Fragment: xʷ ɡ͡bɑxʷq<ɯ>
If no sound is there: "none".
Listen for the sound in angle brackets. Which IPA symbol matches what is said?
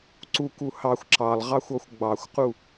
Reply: u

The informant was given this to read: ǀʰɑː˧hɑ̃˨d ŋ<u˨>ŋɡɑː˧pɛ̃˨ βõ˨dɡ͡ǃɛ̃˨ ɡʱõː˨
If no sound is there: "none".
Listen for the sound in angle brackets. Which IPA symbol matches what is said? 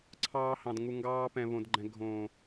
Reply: u˨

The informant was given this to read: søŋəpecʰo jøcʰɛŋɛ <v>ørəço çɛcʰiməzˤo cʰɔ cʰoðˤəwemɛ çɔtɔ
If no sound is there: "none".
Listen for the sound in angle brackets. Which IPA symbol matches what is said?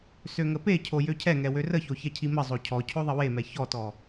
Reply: w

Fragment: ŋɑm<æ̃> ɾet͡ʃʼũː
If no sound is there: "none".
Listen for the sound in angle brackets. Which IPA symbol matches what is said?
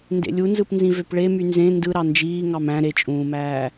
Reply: æ̃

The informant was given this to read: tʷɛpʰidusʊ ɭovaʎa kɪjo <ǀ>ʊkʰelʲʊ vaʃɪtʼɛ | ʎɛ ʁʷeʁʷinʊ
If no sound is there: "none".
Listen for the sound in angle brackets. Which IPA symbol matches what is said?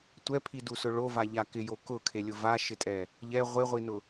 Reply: k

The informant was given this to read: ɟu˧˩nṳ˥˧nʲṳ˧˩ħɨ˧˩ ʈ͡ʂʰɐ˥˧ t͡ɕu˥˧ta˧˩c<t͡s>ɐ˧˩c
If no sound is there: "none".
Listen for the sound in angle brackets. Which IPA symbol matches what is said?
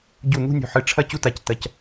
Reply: t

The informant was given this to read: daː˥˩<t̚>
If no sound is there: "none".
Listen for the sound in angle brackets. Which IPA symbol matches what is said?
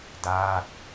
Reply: t̚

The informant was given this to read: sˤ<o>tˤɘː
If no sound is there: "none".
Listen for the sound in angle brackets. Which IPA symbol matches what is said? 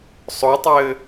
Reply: o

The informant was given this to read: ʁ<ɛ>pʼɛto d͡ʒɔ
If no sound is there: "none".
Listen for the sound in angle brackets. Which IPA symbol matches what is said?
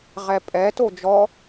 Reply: ɛ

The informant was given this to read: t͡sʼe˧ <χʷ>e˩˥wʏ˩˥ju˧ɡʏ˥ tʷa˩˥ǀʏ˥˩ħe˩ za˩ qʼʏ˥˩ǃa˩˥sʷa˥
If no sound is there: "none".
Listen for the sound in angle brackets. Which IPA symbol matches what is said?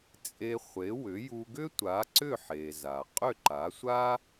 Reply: χʷ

